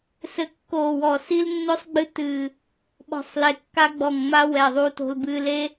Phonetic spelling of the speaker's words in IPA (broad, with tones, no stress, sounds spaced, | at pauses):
s ɘ˨˩ kː oː˨˩ w ɔ˨˩ s i˧ l nː o˧ sˤ ɡ͡b ɨ˧ t ɨː˨˩ | ɓ ɔ̤˨˩ sˤ l e˨˩ kː a˧ ɡ͡b ɔ˨˩ ŋ ŋ͡m a˧ w ɛ˨˩ ðˤ uː˧ t o̤˧ l b ɨː˧ l e˧